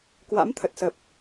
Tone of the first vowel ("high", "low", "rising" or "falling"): rising